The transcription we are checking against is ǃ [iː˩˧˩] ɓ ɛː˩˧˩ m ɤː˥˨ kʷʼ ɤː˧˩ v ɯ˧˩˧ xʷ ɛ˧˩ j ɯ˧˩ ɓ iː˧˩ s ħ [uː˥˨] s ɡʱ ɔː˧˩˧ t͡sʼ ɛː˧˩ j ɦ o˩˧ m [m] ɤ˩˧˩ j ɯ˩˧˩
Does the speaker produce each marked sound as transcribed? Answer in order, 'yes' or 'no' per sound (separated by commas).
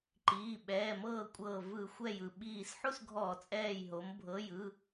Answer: yes, no, no